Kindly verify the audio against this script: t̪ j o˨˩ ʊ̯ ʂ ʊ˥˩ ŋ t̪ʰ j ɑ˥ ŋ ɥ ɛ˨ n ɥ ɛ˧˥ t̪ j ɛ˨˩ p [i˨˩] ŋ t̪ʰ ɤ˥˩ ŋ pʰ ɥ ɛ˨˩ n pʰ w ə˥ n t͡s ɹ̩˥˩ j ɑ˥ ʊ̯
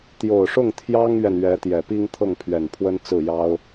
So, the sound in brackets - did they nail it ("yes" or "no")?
no